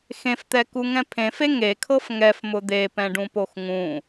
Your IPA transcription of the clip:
x ẽ f t̪ ɛ k u ŋ ɛ̃ pʰ ẽ f e ŋ e kʰ ɤ f ŋ ɛ f m ʊ d̪ e p ɛ̃ ɖ ũ p o x ŋ ũ

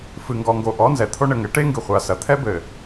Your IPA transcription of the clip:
f ɨ˨ ŋ ɡ ɔ˨ ŋ ɡ o˨ ʔ ɔ˨˦ n z ɛ˨ t̪ʰ o˦ ɳ ɘ˨ ŋ ɘ˨˦ ʈ e˦ ŋ ɡ ɨ˨ χʷ a˨ s ɐ˨ t̪ʰ ɛ˦ b ɘ˨

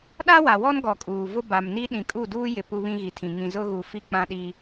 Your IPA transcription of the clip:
ɗ a˦ w a˨ w ɔ˦ n ɡ ɔ˨ kʼ uː˨ v ʊ˦ b a˨ m n i˦ ɗ ĩ˨ kʼ u˦˨ d uː˦ j ɪ˨ p u˦ β ĩ˦ ɣ i˨ tʰ ĩ˨ ŋ ĩ˨ z ʊ˦ ɣ u˨ f i˦ k͡p ã˦ ɗ i˦

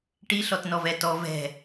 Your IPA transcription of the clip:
ʈ i ɬ ɔ t n ɔ v ɛ t ɔ v ɛ̤

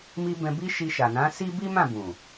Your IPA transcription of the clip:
m i˧ b ɛ̃˧ b i˦ ʃ i˧ ʃ a˨ n ã˨˦ s i˦ b i˦ m ã˦˨ b ũ˨

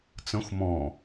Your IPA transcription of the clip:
t͡s ə̃ xʷ m ɔ̃

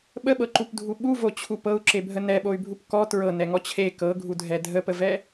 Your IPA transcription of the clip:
ɓ ə ɓ ɤ ǃ u p dʱ u ɓ u v o t͡ɕʰ u p ɤ u̯ ǁ e bʱ ə n ɛ ɓ o y̯ bʱ u p k ɔ t ɹ ɤ n ɛ ŋ ɔ t͡ɕʰ e k ɤ ɡʱ u dʱ ɛ dʱ ə p ə v ɛ

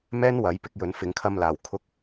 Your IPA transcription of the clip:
m ɛː˥ n w ɐ˨˥ j p ɪ˧ k̚ j ɵ˨˥ n f ɪ˨˥ ŋ kʰ ɐ˧ m l aː˨ w kʰ ʊ˥ k̚

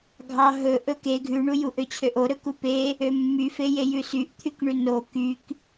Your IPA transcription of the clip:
ɡʱ ɑ ɦ ɵ ʔ ɵ k e ɡʱ ʉ ɳ u j u ʔ ø t͡ɕʰ ø ʔ o ɾ ɵ k u p e | ø mː y f e j e j ʉ s y ʔ t̪ʰ y k ɳ ʉ n o k y k

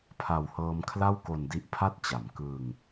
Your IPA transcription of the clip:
pʰ a˧ w h ɤː˦˥ m kʰ l a˥˩ w k o˧ n d i˦˥ ʔ pʰ a˥˩ t̚ t͡ɕ a˩˦ m k ɯː˧ ŋ

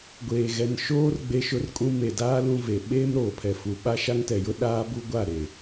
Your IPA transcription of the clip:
ɡʷ eː˨ ɣ ɛ˨ n ʃ oː˦ r ɡ͡b e˦ ʃ ʊ˦ r kʼ ũ˦ m e˨ d aː˦ l ũ˦ v e˨ ɓ eː˦ m ɾ oː˨ pʰ ɛ˨ f u˨ ɓ a˦ ʃ a˦ ŋ t ɛ˨ j ʊ˦ ɗ aː˦ b u˦ ɡʷ a˦˨ ɾ e˨

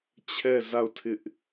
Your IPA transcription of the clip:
t͡ɕʰ ɛ˦˨ z a˦˨ ʊ̯ tʰ ɪ˦ ʔ

